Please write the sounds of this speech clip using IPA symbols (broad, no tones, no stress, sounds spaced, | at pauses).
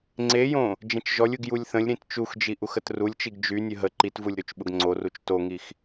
ŋ͡ǀ e j õ | d͡ʒ ẽ t͡ʃ ʒ ɔ lʲ u ɡ j u lʲ θ ə̃ lʲ ɾ ĩ t t͡ʃ u x d͡ʒ i ʔ u x ə t r u lʲ t͡ʃ i ɡ d͡ʒ y nʲ ə ɦ ə ǃ i t v u lʲ ɾ u t͡ʃ ɓ ʊ ɡ ŋ͡ǀ o r u t͡ʃ t o ŋ i x